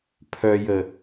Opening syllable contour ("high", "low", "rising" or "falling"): low